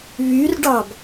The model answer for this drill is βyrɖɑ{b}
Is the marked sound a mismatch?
no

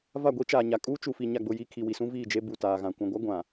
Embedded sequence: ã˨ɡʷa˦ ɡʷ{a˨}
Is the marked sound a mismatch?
yes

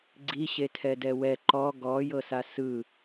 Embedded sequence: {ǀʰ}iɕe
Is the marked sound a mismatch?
yes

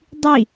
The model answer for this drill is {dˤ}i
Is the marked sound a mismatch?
no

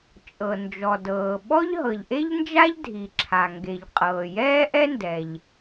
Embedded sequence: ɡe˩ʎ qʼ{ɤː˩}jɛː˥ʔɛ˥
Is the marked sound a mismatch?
no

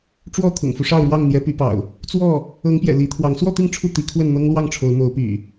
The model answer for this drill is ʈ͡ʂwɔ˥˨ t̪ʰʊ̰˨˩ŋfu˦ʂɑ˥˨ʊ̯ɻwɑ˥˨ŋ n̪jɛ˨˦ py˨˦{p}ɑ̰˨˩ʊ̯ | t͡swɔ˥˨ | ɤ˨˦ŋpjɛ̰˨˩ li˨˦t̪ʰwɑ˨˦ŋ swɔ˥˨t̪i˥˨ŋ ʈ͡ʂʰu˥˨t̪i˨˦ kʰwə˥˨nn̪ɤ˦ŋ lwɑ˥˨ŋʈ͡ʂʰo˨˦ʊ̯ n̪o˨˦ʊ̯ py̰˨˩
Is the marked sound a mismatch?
no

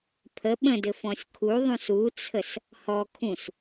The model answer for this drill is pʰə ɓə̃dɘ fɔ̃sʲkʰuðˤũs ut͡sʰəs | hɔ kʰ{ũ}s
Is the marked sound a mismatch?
no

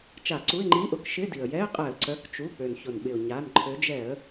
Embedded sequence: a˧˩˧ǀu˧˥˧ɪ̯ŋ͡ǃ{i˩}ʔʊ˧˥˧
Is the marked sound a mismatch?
yes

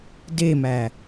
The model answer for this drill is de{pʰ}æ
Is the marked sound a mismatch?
yes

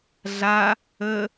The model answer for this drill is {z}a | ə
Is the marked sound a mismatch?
yes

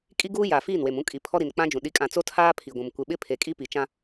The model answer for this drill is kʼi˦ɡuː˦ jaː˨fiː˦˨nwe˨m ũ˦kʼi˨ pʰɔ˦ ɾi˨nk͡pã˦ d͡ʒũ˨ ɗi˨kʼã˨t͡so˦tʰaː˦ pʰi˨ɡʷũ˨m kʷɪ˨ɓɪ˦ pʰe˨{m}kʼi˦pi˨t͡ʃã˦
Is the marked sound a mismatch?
yes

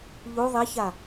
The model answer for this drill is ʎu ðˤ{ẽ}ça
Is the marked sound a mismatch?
yes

